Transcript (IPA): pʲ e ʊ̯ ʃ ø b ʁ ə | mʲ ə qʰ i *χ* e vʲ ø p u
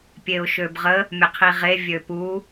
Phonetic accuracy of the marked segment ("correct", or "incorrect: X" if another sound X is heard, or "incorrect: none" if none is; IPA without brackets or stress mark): incorrect: ʁ